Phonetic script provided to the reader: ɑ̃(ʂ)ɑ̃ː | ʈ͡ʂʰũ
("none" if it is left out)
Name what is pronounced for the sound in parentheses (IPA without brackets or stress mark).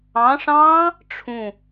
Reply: ʂ